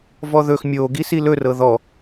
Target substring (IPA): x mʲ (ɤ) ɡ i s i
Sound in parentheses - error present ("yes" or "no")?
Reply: yes